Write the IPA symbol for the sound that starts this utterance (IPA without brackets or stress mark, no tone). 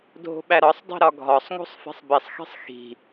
dʱ